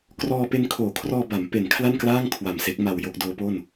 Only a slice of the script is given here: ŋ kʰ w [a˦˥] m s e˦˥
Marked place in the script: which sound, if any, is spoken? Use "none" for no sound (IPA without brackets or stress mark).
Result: a˨˩